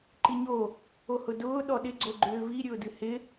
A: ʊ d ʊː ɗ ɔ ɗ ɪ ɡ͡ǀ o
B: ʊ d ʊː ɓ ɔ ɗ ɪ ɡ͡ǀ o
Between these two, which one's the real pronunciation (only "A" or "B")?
A